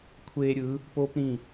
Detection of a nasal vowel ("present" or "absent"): present